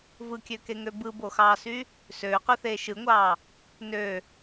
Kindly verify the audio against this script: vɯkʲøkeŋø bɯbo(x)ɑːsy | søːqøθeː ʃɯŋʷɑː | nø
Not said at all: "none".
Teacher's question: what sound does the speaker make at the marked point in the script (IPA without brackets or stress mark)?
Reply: x